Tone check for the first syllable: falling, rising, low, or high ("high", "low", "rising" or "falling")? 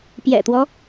low